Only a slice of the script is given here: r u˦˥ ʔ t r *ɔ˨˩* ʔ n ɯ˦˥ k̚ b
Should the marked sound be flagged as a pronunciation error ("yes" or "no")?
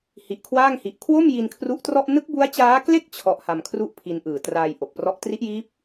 yes